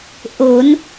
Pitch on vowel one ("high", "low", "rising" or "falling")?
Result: rising